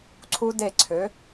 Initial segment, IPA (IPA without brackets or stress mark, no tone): ǀʰ